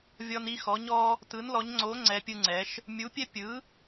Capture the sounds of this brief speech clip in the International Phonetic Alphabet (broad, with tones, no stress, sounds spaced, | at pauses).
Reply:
vʲ ɔ˦ n i˦ x ɔ˨˥ ɲ ɔ˦ | t ɯ˨˥ n l ɔ˨˥ ɲ ŋ͡ǀ o˨˥ ŋ͡ǀ ɛ˨˥ pʲ ɯ˦ ŋ͡ǀ ɛ˨˥ ʃ | mʲ u˨˥ pʲ ɛ˦ pʲ ɯ˨˥